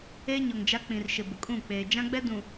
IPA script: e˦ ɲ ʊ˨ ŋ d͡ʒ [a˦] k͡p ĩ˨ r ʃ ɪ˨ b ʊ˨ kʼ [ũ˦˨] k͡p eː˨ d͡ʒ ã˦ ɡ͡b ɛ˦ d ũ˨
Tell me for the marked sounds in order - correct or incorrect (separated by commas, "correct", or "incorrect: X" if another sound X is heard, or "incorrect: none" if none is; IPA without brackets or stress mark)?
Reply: correct, correct